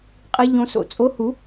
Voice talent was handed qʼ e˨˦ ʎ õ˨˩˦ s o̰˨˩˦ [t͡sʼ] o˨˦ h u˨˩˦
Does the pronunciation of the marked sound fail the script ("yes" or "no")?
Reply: no